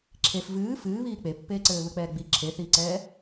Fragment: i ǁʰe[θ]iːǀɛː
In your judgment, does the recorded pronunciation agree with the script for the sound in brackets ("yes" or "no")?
yes